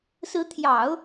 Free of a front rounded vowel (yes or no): yes